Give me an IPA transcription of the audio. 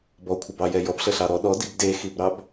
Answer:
b ɔ kʷʰ ə b ɑ j ɛ j ɔ b ɬ ə ɬ ɑ ɾ ɔ ɗ ɔ d i b d e x i b ɾ ɑ b

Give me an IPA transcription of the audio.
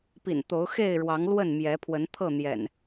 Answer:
p ḭ˨˩ n t̪ o˨˦ ʊ̯ x e˥˨ ɪ̯ ɻ w ɑ˨˦ ŋ l w ə˥˨ n m j ɛ˨˦ pʰ w ə˨˦ n t̪ʰ ɤ˥˨ n̪ j ɛ̰˨˩ n

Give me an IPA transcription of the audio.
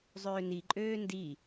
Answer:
zˤ øː n i ǃʼ øː n d i

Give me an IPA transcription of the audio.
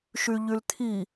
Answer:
ʃ y ʎ y l t̪ʰ i

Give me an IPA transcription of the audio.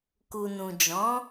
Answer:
k u˨ n ũ˨ d͡ʒ ɔ̃˨˦

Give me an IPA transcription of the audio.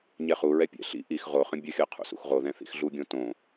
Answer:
ɲ ɛ χ u ɹ ɛ pʲ ɛ̰ ɬ ḭ ʔ i x ʁ o χ ə̃ bʲ ə xʲ ɤ qʰ ṵ s ṵ x ʁ o ð ɛ̃ θ ḭ x ɮ u ɡʲ õ t õ

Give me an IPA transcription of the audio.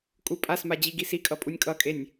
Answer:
kʼ u pʼ a s m a d͡ʑ i ɡ i s i kʼ ʌ pʼ u nʲ kʼ ʌ kʼ e nʲ

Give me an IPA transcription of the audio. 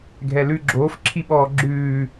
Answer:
ɡʱ ɛ l ʉ ɡ͡ǁ oː f ǁʰ i ɓ ɔː ɡ͡ǁ ʉː

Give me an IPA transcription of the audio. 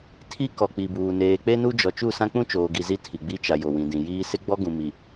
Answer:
tʰ i˦ k ɔ˨ k͡p i˨ b uː˨ n eː˨ k͡p e˦ n u˦ d͡ʒ ɔ˨ t͡ʃ u˦˨ s ã˦ k͡p ũ˦ t͡ʃ oː˨ ɡ i˨ z i˦ tʰ i˨ ɡ͡b i˦ t͡ʃ a˨ j o˨ w ĩ˨ d ĩ˨ j iː˦ s ɪ˦ ɡ͡b ɔ˦ ɡ ũ˨ m i˨

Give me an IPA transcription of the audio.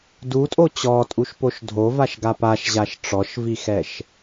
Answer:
d u tʼ o t͡ɕ ɔ tʼ u ʃ p o ʃ dʱ o v a ʃ ɡ a p a ʃ ʑ a ʃ ʈ͡ʂ ɔ ʃ v i x ɛ ʃ

